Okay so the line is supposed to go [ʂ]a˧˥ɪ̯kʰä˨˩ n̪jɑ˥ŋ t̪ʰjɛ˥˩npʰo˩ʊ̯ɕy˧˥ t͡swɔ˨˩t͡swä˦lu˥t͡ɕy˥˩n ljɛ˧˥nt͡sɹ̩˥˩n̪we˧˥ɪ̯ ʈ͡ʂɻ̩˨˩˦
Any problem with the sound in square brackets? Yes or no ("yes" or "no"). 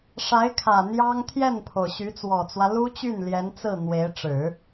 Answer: no